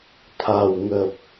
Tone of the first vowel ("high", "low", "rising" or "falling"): low